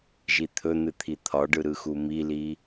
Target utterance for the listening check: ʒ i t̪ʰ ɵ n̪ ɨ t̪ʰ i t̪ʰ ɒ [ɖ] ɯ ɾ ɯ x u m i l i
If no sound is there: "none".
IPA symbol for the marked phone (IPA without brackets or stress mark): ɖ